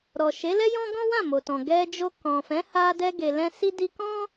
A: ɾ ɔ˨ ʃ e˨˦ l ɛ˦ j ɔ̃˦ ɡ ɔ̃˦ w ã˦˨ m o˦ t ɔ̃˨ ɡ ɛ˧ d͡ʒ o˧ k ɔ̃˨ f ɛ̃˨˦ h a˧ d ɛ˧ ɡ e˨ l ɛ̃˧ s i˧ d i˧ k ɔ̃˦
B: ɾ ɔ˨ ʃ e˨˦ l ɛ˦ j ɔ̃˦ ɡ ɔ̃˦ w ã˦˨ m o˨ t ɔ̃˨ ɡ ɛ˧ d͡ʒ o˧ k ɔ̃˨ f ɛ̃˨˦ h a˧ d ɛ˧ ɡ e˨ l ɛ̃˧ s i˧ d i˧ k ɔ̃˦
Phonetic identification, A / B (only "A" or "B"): B